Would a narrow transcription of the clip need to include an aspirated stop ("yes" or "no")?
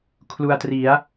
yes